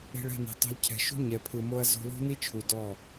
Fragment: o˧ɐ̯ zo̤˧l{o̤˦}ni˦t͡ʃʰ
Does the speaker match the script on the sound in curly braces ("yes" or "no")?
yes